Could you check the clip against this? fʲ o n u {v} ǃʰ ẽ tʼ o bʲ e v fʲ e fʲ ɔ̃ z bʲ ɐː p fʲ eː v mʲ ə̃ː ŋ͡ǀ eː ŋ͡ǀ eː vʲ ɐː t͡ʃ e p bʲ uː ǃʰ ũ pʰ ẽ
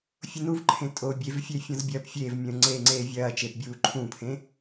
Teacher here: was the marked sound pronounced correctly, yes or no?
yes